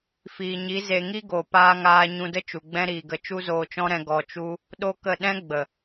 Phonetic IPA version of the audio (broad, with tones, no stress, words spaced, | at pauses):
fiː˨ɲi˨˦ ze˧ ŋi˦ɡo˨ paː˦ŋaː˦ ɲũ˧də˦ t͡ʃu˨ɡ͡bɛ̃˦ɾiː˨ɡə˧ t͡ʃu˦zoː˧t͡ʃɔ̃˦ɾɛ̃˧ ɡɔ˧t͡ʃu˦ | ɗo˦kə˦˨ ɗɛ̃˦ ɡ͡bə˨